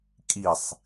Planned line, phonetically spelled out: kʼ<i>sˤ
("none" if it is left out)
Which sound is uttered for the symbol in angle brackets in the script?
i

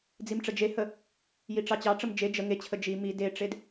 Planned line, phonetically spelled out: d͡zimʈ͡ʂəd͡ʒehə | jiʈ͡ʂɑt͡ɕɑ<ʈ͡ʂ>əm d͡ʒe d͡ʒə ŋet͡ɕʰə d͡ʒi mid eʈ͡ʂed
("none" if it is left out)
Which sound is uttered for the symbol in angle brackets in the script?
ʈ͡ʂ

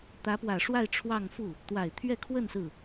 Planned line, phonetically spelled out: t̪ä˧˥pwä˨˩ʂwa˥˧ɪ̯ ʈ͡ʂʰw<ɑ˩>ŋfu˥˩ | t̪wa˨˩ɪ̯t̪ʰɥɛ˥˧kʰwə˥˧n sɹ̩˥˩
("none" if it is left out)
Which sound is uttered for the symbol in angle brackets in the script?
ɑ˥˧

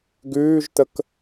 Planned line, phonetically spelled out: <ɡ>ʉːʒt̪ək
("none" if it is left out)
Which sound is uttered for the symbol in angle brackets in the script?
ɡ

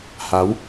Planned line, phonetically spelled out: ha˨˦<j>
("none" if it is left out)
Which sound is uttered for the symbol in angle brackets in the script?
w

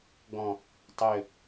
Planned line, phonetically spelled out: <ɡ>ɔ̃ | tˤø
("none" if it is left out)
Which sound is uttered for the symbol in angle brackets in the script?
ɡ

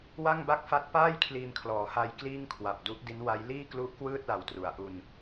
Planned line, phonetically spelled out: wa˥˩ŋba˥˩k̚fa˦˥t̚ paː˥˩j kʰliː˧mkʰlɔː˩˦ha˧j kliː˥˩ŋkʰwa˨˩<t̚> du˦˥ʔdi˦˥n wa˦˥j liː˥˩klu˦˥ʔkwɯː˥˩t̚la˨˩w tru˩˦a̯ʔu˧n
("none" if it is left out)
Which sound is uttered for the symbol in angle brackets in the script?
p̚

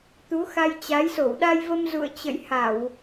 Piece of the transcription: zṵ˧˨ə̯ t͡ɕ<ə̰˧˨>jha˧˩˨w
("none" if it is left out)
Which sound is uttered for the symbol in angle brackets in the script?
ə̰˧˨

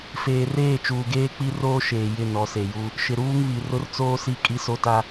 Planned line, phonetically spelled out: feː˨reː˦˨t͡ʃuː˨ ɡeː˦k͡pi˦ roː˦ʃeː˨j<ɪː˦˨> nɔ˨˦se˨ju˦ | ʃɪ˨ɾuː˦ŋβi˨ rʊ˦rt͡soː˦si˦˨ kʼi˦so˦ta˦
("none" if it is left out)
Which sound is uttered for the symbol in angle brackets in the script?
ɪ˦˨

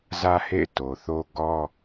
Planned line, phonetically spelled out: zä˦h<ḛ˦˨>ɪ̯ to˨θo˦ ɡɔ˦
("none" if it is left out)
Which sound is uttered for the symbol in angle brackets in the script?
ḛ˦˨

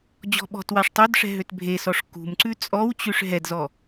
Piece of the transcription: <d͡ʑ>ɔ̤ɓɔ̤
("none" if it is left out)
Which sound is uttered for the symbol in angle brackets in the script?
d͡ʑ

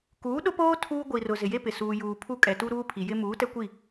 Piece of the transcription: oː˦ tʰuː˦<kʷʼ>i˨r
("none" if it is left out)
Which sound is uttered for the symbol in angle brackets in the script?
ɡʷ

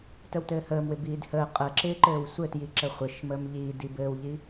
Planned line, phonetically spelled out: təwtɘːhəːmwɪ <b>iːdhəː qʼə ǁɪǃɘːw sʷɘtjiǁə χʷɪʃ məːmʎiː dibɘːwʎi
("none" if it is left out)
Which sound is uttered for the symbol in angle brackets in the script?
b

